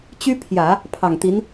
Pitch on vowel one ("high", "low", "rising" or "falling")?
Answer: high